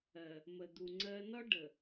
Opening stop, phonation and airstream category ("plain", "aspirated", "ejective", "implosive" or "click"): plain